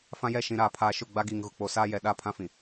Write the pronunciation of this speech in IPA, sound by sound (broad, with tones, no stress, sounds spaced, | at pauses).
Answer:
f ã˦ j ɛ˦˨ ʃ ĩ˨ ɾ aː˨ pʰ aː˨ ʃ ʊ˦˨ ɡ͡b a˦ ɡ iː˨ ŋ ɣ ʊ˨ k͡p o˨ s aː˦ j ɛ˨ ɗ a˦ pʰ ã˦ f ĩ˨